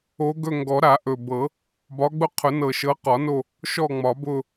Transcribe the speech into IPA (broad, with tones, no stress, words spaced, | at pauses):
o˨˦ɡɵ˦˨ ŋɡɔ˨˩˦ɾa˨˩˦ ʔɵ˨˩bɤ˨˩˦ | bɒ˨˦ɡ͡bʊ˦qʰʊ˨˩˦ nɤ˨˩ʃɤ˨˦qɒ˨˩˦no˦˨ | ʃɔ˦˨ŋ͡mɒ˨˩˦ bʊ˦˨